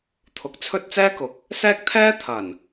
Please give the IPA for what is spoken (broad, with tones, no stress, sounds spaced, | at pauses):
t̪ʰ ʊ˨˥ k̚ t͡sʰ ɵ˥ t̚ t͡s ɛː˥ k ʊ˨ k̚ | s ɛː˥ k̚ t̪ʰ ɛː˥ t̪ʰ ɐ˨˩ n